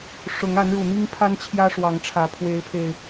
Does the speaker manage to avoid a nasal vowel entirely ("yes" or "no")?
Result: yes